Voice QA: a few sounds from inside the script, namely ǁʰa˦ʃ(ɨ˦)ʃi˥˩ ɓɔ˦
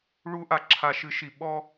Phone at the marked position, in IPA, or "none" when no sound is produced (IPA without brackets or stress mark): ɨ˦